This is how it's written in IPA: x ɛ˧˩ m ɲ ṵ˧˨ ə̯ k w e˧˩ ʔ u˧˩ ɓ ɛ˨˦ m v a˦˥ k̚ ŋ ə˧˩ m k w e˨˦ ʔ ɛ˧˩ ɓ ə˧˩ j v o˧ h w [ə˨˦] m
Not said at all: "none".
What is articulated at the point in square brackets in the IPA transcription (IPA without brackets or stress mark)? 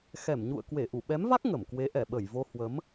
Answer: ə˨˦